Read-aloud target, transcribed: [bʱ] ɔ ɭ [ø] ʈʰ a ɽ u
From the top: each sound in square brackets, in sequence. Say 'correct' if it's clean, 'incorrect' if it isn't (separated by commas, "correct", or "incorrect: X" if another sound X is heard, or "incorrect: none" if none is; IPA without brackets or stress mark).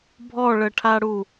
correct, incorrect: ə